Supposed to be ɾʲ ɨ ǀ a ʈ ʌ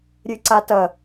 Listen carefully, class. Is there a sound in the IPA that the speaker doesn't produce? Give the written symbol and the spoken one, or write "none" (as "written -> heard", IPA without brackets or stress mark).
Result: ʈ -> t